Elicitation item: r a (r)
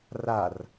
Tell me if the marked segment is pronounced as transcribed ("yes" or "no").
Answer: yes